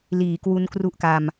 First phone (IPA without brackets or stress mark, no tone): l